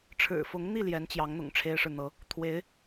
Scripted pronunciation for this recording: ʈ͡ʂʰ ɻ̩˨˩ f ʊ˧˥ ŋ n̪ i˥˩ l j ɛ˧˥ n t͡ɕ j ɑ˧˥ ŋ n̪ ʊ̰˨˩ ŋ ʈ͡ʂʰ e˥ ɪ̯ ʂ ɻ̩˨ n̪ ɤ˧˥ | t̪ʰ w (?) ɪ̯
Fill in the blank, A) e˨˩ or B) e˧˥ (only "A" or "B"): B